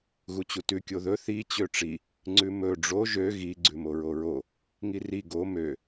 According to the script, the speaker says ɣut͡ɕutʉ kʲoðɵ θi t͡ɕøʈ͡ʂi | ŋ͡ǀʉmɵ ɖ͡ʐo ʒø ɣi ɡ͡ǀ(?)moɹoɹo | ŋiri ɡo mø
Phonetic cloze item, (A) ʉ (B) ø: A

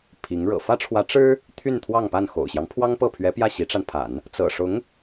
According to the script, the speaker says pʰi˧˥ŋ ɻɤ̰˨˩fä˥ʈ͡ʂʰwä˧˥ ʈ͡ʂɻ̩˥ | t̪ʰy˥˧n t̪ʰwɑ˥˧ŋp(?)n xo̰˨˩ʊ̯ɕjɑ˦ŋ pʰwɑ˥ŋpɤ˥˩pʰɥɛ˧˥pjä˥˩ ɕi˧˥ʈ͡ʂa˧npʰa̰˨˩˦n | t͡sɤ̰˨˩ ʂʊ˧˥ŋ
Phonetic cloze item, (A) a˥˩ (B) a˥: A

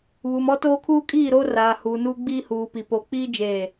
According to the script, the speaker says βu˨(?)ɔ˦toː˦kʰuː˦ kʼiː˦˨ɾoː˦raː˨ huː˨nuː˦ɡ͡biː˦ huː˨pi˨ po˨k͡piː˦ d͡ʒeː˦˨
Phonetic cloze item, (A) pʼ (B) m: B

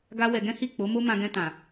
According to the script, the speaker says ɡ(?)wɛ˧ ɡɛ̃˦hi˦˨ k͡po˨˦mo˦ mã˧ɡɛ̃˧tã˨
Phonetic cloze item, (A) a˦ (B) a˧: A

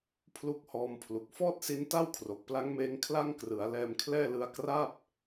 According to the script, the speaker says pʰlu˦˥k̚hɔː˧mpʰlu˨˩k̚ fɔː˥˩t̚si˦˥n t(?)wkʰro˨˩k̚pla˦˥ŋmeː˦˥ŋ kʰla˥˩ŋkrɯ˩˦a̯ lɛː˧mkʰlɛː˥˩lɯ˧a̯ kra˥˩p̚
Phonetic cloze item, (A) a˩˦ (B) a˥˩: B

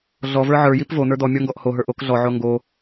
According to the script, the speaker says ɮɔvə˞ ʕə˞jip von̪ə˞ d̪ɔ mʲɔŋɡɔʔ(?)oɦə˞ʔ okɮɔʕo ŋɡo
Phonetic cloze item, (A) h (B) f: A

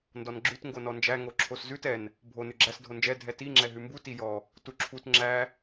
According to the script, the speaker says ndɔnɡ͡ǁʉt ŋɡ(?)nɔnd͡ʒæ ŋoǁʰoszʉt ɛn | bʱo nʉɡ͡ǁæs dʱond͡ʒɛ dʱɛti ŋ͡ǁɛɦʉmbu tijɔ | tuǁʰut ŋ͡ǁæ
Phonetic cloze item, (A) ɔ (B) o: B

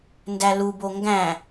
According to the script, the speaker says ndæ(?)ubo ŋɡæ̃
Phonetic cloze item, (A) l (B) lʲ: A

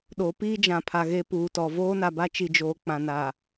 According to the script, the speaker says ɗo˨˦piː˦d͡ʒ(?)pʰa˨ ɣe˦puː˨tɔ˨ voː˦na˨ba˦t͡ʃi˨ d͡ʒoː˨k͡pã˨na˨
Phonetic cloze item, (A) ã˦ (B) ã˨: B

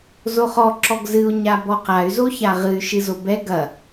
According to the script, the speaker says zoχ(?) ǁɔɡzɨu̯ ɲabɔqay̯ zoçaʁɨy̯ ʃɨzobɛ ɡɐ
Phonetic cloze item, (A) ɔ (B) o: A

